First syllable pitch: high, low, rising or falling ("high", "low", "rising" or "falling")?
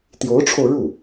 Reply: rising